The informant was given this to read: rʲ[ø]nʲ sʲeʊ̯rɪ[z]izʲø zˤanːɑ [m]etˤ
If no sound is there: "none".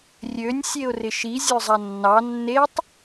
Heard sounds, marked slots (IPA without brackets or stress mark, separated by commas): ø, ʃ, nː